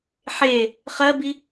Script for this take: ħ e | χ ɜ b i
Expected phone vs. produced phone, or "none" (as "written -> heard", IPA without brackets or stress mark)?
none